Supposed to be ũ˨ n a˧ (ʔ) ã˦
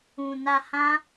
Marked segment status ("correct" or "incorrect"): incorrect